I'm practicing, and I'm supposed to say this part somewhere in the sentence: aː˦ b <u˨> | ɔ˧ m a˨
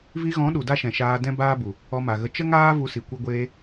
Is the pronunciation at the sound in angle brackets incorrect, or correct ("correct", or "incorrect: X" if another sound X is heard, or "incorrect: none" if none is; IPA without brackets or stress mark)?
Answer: correct